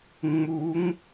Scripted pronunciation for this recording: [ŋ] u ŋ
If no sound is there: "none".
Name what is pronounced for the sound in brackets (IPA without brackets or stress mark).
ŋ͡m